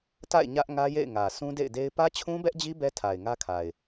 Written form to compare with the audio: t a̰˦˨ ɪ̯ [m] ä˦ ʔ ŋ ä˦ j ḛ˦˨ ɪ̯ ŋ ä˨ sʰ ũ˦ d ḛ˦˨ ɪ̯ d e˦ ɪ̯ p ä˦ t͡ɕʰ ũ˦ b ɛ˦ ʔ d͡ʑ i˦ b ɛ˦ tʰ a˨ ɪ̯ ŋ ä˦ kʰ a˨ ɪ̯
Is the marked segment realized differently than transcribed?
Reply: yes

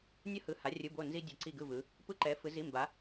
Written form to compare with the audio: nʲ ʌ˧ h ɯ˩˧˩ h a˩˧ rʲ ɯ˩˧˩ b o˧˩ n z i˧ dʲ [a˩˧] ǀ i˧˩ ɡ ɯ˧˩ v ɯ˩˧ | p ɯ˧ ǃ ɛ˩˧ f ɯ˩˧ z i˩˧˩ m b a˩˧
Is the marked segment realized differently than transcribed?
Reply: yes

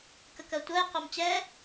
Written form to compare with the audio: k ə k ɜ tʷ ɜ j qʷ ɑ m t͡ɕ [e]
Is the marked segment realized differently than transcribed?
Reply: yes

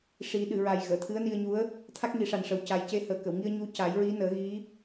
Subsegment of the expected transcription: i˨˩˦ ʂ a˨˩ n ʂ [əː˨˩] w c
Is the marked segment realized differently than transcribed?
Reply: yes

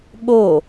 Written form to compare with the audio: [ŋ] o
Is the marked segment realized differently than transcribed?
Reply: yes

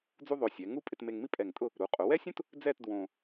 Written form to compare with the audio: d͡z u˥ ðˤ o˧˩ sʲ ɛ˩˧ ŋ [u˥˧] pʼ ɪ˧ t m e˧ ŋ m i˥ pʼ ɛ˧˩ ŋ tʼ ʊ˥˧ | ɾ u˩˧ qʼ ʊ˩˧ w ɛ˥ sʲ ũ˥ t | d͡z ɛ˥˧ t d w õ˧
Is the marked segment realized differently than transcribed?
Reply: no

